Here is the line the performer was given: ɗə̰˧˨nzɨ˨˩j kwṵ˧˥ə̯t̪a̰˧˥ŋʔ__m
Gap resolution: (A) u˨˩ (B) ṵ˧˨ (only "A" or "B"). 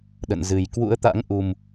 A